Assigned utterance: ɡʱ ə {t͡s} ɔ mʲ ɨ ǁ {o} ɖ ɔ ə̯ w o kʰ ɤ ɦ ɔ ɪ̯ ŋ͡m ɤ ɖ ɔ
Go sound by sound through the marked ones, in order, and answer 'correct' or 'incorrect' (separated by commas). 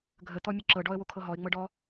incorrect, incorrect